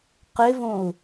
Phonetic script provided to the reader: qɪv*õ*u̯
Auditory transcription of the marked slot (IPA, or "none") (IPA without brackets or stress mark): õ